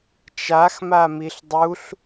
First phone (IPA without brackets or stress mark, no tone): t͡ʃ